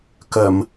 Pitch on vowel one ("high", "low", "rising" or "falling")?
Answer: low